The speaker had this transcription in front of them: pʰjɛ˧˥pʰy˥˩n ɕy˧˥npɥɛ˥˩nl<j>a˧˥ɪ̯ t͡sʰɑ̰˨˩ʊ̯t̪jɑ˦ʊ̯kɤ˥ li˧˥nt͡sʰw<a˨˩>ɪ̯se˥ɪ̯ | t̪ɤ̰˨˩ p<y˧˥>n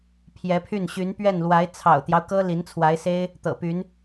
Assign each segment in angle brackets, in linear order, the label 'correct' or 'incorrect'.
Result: incorrect: w, incorrect: a˧˥, correct

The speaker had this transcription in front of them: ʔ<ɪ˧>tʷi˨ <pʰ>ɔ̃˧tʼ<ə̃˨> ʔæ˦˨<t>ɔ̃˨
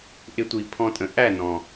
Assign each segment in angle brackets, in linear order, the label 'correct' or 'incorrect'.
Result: correct, correct, correct, incorrect: n

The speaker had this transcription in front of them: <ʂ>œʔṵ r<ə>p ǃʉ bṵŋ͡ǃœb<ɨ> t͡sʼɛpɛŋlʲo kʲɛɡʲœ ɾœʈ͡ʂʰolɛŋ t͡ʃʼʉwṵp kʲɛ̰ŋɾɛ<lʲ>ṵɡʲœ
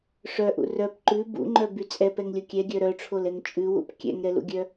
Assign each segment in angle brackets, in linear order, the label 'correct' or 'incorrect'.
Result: correct, incorrect: œ, incorrect: y, incorrect: l

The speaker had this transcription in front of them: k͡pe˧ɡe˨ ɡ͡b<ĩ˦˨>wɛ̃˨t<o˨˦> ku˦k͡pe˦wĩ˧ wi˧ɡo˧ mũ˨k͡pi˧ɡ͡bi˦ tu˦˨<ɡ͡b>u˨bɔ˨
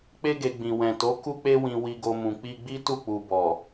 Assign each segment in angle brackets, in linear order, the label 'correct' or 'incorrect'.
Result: incorrect: ĩ˨, correct, incorrect: k͡p

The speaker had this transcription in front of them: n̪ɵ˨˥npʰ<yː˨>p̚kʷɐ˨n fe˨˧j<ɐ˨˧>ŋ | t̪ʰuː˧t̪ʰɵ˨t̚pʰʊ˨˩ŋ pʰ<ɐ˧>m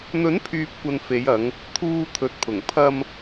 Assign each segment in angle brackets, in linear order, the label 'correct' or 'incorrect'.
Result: correct, correct, correct

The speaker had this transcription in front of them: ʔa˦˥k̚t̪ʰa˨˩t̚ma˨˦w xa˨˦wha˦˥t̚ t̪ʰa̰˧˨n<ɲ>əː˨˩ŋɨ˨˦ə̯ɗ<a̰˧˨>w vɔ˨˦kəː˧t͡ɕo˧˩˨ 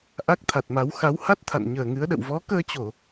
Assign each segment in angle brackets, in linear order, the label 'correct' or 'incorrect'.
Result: correct, incorrect: ə̰˧˨

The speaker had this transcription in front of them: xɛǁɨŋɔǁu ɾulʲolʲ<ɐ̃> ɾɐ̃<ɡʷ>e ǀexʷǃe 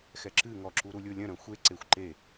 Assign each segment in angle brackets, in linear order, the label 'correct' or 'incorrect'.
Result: correct, incorrect: xʷ

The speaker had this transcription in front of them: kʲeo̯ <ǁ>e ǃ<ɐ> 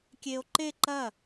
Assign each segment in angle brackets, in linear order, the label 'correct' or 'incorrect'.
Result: incorrect: ǃ, correct

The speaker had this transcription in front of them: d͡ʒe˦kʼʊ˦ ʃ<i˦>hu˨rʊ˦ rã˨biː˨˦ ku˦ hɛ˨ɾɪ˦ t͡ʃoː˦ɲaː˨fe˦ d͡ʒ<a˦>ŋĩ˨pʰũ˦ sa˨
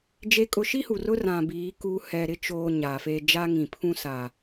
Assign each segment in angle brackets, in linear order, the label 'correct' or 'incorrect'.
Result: correct, correct

